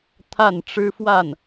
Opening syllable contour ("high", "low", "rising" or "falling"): falling